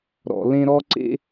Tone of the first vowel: low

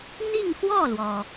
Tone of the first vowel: falling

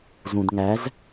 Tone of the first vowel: low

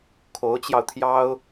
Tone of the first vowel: rising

